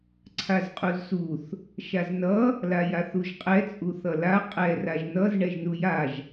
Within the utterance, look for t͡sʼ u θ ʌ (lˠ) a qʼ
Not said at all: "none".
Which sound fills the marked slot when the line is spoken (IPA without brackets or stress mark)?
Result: l